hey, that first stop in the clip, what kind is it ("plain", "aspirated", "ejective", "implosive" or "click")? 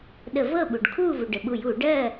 implosive